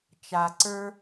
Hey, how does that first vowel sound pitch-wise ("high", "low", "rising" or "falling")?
low